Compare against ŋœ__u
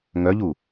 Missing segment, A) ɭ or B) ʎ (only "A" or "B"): B